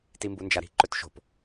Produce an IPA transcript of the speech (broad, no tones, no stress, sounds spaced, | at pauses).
t i m b u n d͡ʒ a ɾ i̤ ǃ ɵ t ʃ o̤ p